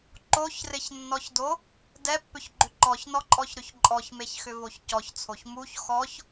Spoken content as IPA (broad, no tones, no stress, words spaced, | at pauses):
ǃoçrɪçnːɔçdo | dɛpːʏçɡ͡ǃʏ ǃɔçnɔǃʼɔçɾʏç ǃʼɔçmeçxʏvoç cɔçt͡sʰoç muç xɔç